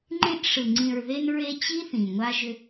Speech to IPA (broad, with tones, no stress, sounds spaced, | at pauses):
ŋ͡ǃ ẽ˦ ʔ ʂ ɯ˨ ŋ͡ǀ ĩ˨ ɹ ð e˧ n ɹ e˧ t͡ɕ i˦ θ ĩ˨ ŋʷ a˧ ʒ ʏ˧